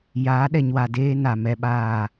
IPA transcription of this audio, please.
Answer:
j aː˨˦ ɗ ɛ˨ ɲ w a˨ d eː˦ n a˨ m ɛ˦ ɓ aː˦˨

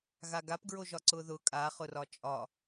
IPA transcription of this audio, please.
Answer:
ɣ a ɡ a p ɡ ɹ o ʒ ɒ ǀ ʊ ð ʊ kʼ a χ ʊ r ɒ t͡ʃʼ ɒ

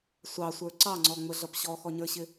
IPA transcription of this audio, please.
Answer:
sʷ ɑ sʷ ə˞ ǀ ɑ ŋ͡ǀ ɔ ŋ͡m ə ɮ ʌ p ɕ ɔ x ɔ ɲ ə˞ ɕ ɪ

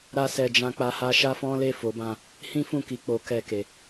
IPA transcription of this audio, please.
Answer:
ɾ a˧ s ɛ˨ d͡ʒ ã˧ k͡p a˧ h a˧ ʃ a˦ f ɔ̃˦ l e˦˨ f o˨˦ b ã˦˨ | h ĩ˦ f ũ˦˨ k i˧ k͡p o˧ k ɛ˧ k e˨

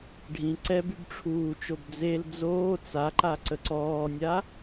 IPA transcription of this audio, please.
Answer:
ɖʱ ĩ ǀ ɛ b y b ʈ͡ʂʰ uː t͡ʃ o b d͡z e l d͡z oː t͡s a ǃ a ǀ ə ǀ ɔː nʲ a

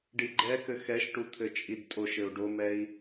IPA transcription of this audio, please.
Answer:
ɖ i ɡ͡ǃ ɛ k ɘ x ɛ ʃ ʈ u t̪ʰ ɘ t͡ʃʼ i d tʼ o ʃ ɘ u̯ ɖ o m ɛ i̯

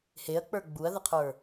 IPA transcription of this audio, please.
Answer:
h e ɐ̯ k͡p ə˞ ɡ͡b u ɐ̯ ð ə qʰ ə˞

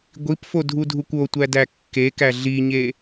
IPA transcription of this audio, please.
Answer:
ɡʷ i p f o dʱ u dʱ u kʷ o tʷ æ d æ kː e k æ ɮ i ɲ e

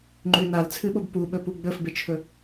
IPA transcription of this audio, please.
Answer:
ŋ͡ǃ ʉ n a l t͡sʰ ɨ ɓ o b p u ɓ ɵ p u ɡ͡b ɵ f b e t͡ʃʰ ɵ

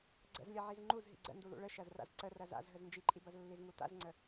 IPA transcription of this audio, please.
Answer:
ɡ͡ǀ ə̰ z lʲ ɐ ʕ i z ŋ͡ǃ u z ɦ ḭ ɡ͡ǀ ə̰ n d u l ṵ ɭ ə ʃ ɐ z r a̰ z ǀ ə r ɐ z a̰ z ɦ ə z n d͡ʒ i ǃʼ i b ɐ z lː i z ŋ u t a̰ z ŋ͡ǀ ə

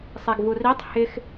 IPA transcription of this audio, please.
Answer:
sˤ ɛ ɡ v u r i tˤ h ɪ x

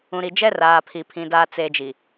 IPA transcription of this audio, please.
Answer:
ũ˨ ɾ i˨ d͡ʒ ɛ˦ r aː˨ pʰ i˨ pʰ ĩ˨ d aː˨ t͡s eː˨ d͡ʒ i˨

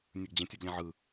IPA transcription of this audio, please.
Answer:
nʲ ɯ ɡ d͡ʑ ɛ̃ tʲ ɔ ɡ lʲ ɛ̃ ʕ ɯ

